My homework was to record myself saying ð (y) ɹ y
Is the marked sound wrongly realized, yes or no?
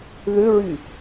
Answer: yes